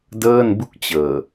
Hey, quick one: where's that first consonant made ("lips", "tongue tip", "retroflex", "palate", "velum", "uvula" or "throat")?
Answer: tongue tip